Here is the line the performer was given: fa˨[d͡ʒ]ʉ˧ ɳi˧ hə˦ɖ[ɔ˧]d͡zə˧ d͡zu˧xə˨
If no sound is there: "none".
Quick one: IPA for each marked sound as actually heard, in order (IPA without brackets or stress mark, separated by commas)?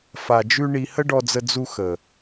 d͡ʒ, ɔ˧